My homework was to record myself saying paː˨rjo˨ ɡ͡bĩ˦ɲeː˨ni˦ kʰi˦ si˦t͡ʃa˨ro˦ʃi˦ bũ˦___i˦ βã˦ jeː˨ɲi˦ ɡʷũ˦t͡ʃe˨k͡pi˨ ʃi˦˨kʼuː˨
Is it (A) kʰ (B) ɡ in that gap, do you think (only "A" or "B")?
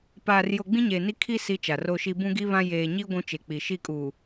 B